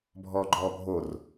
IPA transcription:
bʱɔːɡ͡ǃɔːbʱor

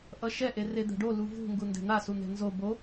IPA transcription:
ʔʌʃɛʔe red̪ɛ̤ɖo luvṳ ŋɡundɛ̤n̪asu n̪ɛ̤nzo bo

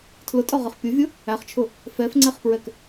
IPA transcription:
tʰlʊtʼɔʁəχ pʲʊvʲʊ | æχt͡ʃʰʊ | fɛfŋ͡ǀɛχpɹɛk

